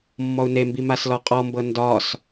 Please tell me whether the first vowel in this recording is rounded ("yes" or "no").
yes